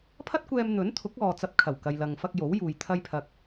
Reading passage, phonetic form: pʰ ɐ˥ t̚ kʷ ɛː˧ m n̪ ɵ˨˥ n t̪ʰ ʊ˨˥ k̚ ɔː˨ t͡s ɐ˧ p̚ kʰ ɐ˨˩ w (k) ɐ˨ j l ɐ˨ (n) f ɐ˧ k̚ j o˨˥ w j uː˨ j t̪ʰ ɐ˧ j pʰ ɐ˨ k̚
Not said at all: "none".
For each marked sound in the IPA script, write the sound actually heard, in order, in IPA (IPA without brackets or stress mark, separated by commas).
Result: k, ŋ